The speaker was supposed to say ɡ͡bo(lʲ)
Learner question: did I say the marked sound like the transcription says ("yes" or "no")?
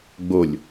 yes